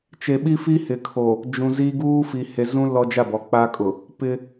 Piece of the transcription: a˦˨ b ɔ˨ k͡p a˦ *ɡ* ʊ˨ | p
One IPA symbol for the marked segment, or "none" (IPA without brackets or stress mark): kʼ